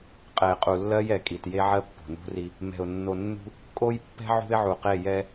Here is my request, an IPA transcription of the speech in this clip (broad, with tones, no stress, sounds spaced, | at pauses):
qʼ ɛ˨ ɪ̯ qʼ u˨ lː ɜ˦ j ɛ˨ kʼ i˨ t j e˦ ʕ ɜ˦ pː o̤˨ n ṳ˦ r i˦ | m ɛ̤˨ ʊ̯ nː o˨ nː ṳ˦ | kʼ o˦ j pː ɛ̤˦ ʕ ṳ˦ ɪ̯ ʕ u˨ q e˦˨ j ɛ˦